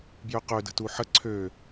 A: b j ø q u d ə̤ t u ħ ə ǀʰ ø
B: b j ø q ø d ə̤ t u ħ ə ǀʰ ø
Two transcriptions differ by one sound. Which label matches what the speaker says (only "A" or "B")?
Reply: B